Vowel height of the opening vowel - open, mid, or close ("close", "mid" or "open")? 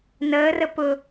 mid